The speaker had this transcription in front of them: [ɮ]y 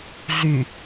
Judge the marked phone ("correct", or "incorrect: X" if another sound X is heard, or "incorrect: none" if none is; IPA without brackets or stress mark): correct